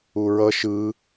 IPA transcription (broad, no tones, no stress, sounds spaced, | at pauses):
u ɹ ʌ ʃ ɯ